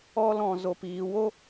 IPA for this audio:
ɔ˧lɔ̃˨zo˨p iː˨ wo˦

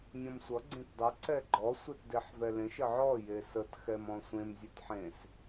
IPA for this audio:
nʲɔ̃msʷʌ ɡ͡ǀẽtdˤʌ ǀɛɡ͡ǃɔ sʷetdeħvɛlẽʃ əʕɔ jesət xɛmɔ̃sʷẽm zʲʉtħẽs

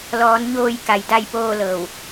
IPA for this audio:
lɔː˩˧nɲoː˧˩j ka˩˧jda˥˨jpoː˥˨ lɤː˧˩w

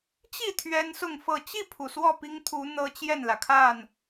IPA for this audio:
t͡ɕi˥˨ t̪ʰɥɛ˦nsʊ˥˨ŋfɤ˥˨ t͡ɕi˥˨pʰu˩ swɔ˥˨pi˦ŋt̪ʰu˨˦ n̪ɤ˦t͡ɕjɛ˥˨nlä˩kʰa˥˨n

